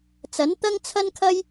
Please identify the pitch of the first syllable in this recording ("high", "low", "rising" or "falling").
rising